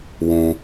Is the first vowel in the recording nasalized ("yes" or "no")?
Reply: yes